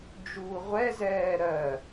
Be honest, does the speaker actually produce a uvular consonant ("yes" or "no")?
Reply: yes